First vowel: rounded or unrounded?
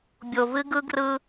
rounded